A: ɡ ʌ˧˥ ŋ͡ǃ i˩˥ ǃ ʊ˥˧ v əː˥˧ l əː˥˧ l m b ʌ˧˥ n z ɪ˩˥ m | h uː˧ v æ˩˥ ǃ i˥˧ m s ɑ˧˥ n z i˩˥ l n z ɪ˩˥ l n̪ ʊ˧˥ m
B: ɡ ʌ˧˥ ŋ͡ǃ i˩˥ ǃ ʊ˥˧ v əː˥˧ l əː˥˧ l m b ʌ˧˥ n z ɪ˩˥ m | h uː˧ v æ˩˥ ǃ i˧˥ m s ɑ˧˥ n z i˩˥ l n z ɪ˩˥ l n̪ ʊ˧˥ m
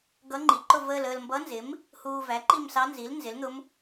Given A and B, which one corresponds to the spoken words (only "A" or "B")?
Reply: A